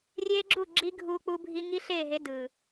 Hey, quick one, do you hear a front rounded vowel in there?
no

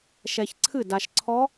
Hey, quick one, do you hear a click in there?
yes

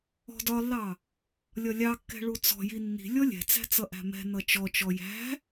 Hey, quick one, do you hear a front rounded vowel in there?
no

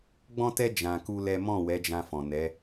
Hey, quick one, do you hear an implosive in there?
no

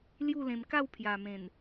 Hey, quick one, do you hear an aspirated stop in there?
yes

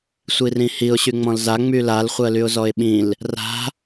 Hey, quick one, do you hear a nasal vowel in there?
yes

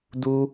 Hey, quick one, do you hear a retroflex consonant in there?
no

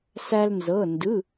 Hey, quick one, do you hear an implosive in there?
no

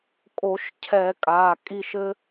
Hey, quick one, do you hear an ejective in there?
yes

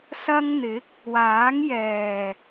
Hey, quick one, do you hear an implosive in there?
no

